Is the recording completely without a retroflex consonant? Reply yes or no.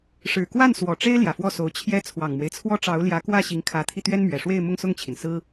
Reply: no